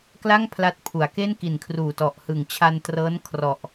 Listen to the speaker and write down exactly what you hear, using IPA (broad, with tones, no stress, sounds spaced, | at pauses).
k l a˥˩ ŋ pʰ l a˦˥ t̚ pʰ u˩˦ a̯ k e˥˩ n k i˨˩ n kʰ r uː˨˩ t ɔ˨˩ ʔ h ɯ˨˩ ŋ t͡ɕʰ a˧ n t r ɤː˦˥ n kʰ r ɔ˨˩ ʔ